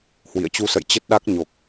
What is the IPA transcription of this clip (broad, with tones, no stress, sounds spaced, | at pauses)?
h w ḭ˧˨ ə̯ t͡ɕ u˧ s ə̰˧˨ j t͡ɕ ə˦˥ t̚ ɗ a˦˥ k̚ ɲ o˨˩ k̚